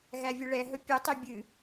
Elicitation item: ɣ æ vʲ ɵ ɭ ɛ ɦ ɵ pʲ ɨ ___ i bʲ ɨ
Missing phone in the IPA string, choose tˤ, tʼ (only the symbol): tˤ